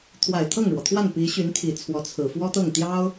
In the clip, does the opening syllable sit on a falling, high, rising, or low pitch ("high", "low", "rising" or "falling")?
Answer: low